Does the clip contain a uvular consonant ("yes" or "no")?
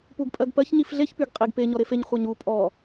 yes